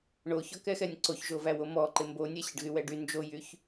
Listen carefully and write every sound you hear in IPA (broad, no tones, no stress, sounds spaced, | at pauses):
ɳ o ç ɔ k ɛ x ɛ nʲ ǀ o ç ʒ o v æ w o m ɔ ǃ ɪ m b o nʲ ɛ ɕ ɪ ɖ ɣ y w ɛ ɖ y n d͡ʒ o j y ç